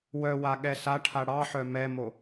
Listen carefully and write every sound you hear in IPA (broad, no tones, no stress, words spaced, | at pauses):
wœwa ɠɛsaʈʰa ɽɑħœ mɛmo